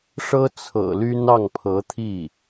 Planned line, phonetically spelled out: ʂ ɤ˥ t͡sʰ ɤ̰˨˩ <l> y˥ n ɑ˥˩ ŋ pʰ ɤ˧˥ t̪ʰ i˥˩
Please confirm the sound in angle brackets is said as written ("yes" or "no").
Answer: yes